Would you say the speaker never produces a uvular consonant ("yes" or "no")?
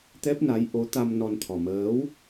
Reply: yes